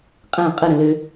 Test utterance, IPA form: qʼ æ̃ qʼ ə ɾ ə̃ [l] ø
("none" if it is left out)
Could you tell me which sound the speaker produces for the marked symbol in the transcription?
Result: l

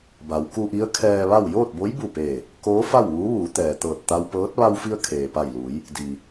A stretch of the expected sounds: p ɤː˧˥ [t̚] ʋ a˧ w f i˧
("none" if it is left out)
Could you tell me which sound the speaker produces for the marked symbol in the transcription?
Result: t̚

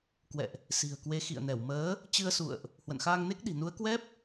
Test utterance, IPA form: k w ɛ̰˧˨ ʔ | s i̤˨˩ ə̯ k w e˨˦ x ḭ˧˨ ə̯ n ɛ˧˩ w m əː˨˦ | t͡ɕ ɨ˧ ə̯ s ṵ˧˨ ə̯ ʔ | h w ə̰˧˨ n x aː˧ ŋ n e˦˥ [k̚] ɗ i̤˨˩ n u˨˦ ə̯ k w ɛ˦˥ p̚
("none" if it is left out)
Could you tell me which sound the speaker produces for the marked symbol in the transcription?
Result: k̚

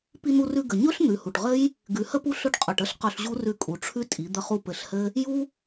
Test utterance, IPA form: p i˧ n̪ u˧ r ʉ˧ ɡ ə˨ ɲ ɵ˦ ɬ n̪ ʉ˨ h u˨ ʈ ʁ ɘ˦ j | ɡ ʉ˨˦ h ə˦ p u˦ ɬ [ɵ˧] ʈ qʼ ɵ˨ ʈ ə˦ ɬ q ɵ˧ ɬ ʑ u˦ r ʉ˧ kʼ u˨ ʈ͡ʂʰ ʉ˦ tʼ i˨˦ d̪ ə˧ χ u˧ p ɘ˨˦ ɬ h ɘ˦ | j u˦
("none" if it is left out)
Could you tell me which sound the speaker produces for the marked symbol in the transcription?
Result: ɵ˧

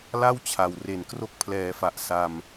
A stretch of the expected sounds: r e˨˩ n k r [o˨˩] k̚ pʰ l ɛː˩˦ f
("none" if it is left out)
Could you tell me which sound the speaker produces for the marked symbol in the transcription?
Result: o˦˥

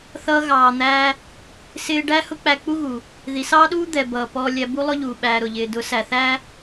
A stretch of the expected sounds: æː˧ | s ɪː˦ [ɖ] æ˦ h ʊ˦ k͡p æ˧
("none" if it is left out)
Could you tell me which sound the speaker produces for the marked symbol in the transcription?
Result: ɖ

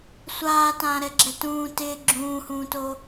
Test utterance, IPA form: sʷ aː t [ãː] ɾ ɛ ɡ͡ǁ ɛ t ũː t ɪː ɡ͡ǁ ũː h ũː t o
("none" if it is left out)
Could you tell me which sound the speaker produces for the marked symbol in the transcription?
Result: ãː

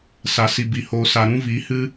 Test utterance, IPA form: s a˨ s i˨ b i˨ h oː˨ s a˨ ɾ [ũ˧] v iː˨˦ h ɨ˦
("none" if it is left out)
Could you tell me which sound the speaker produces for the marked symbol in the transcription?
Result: ũ˧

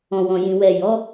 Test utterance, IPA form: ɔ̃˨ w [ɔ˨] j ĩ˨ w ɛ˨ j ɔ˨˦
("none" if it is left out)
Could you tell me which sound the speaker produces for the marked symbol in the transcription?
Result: ɔ̃˨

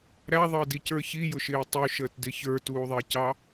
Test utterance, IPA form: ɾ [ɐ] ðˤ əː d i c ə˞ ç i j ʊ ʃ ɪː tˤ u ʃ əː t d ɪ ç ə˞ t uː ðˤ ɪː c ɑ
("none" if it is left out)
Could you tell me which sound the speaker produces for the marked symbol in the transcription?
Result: æ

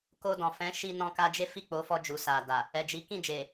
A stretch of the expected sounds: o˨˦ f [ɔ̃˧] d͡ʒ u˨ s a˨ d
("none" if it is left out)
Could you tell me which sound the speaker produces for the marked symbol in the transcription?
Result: ɔ˧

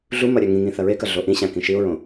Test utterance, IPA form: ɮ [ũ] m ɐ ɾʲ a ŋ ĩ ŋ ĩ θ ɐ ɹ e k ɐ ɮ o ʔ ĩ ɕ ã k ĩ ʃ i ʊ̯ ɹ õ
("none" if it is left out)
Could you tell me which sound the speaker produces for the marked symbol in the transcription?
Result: u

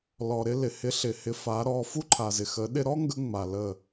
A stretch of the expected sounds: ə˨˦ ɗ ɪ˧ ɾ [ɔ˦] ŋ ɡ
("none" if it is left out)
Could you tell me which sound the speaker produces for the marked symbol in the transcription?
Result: ɔ˦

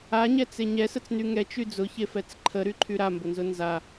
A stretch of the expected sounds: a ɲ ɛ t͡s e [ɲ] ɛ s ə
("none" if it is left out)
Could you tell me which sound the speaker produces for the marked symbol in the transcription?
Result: ɲ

